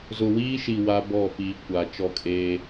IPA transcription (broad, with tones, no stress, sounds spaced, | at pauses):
z ʊ˨ w iː˦ ʃ i˨ w a˦ b ɔ˦˨ p iː˨ kʷ a˨ t͡ʃ ɔ˦˨ kʼ eː˦